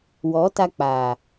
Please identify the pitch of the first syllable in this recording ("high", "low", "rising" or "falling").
rising